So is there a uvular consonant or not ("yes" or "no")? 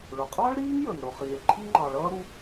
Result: yes